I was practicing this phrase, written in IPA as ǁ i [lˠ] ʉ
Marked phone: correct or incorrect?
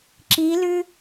incorrect